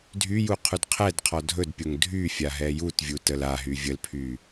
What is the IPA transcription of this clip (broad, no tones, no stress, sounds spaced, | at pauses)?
dʱ y j u qʰ u d qʰ ɛ d qʰ ɔ dʱ ɵ d pʲ o ŋ dʱ y fʲ a ɦ ɛ j u t vʲ u t ə l a ɦ y vʲ ə l pʰ y